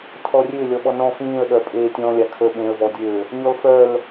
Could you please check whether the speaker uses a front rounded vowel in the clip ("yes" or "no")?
yes